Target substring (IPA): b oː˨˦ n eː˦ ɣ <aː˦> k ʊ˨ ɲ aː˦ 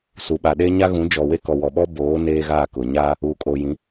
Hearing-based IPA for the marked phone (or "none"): aː˦˨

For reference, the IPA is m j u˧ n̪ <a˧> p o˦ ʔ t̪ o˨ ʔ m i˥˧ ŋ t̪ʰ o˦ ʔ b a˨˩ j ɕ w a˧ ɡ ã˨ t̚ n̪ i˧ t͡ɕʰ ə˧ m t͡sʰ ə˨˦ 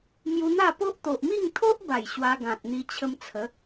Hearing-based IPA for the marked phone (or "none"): a˥˧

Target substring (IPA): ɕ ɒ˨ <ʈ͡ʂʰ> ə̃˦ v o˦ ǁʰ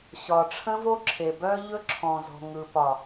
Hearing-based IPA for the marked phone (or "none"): ʈ͡ʂʰ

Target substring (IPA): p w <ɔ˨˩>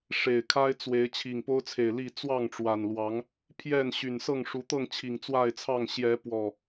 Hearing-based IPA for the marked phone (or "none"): ɔ˨˩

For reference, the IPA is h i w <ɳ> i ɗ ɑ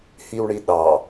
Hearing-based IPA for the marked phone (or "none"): ɳ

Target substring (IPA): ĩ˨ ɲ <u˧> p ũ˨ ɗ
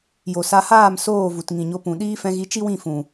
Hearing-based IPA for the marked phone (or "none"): o˧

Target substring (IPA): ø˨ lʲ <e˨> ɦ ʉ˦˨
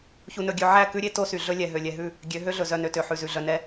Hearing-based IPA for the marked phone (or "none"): ɛ˨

